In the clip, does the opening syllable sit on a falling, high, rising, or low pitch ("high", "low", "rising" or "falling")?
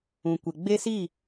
low